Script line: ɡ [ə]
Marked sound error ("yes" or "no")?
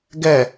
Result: yes